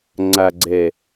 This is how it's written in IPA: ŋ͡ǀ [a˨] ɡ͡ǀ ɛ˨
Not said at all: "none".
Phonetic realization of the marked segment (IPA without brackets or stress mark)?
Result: a˨